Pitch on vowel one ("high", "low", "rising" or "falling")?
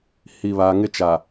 low